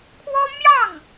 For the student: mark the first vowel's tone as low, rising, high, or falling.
high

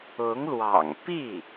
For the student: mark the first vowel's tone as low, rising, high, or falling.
rising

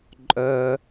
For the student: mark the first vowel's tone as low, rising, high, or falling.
high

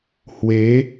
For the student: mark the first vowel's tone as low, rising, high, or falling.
rising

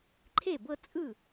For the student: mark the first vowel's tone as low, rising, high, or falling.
falling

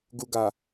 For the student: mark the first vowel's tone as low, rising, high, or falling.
low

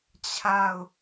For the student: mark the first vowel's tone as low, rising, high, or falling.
falling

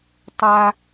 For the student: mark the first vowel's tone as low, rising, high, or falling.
high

